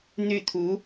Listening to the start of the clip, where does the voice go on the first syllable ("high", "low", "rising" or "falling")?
falling